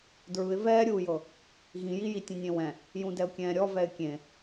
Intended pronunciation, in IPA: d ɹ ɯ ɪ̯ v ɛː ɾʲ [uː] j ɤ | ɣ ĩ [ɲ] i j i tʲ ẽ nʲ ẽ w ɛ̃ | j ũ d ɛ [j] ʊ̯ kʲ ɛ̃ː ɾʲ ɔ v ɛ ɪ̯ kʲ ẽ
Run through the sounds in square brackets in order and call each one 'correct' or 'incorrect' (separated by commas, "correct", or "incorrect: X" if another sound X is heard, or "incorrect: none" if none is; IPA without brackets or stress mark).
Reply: correct, incorrect: j, incorrect: none